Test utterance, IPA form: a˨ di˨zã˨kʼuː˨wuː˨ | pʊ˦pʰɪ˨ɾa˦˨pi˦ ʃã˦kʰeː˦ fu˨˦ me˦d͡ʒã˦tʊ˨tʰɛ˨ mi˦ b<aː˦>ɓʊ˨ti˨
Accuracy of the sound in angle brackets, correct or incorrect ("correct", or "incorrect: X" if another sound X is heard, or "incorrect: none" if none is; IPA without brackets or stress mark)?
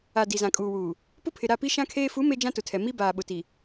incorrect: aː˨